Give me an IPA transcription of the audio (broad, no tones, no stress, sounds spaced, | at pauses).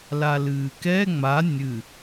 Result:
l a l ɨː k ɛ ŋ͡m a nʲ ɨ